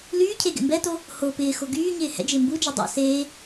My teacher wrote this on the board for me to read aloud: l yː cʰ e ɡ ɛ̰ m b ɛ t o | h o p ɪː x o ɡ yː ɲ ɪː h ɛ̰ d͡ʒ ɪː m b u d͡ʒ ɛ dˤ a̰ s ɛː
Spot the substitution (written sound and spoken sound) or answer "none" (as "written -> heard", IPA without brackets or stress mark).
ɛː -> eː